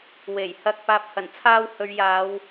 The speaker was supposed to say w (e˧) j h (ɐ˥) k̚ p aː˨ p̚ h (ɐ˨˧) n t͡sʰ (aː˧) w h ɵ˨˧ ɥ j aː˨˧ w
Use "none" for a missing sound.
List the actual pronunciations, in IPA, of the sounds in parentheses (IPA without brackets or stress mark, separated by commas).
e˨˩, ɐ˧, ɐ˨˩, aː˧